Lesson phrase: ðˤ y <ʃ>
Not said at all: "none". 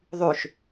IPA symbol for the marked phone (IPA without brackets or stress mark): ʃ